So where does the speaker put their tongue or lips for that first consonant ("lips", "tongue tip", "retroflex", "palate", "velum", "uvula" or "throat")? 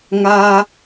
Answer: velum